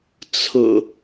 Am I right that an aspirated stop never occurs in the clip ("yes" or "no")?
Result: no